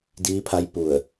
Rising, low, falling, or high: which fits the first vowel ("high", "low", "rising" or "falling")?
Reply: rising